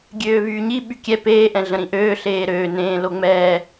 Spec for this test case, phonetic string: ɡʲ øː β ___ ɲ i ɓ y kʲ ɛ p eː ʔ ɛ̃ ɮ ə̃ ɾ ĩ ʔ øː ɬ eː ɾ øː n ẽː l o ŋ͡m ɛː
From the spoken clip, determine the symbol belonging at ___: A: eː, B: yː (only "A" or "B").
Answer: B